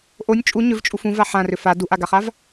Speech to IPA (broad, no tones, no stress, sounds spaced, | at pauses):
ʔ o nʲ t͡ʃʼ u ɲ ʏ v t͡ʃʼ u f ũ v a ħ ã r ʏ f a d u ʔ a ɡ a χ a v